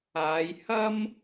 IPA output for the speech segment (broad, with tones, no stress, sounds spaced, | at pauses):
aː˨˧ j h ɐ˥ m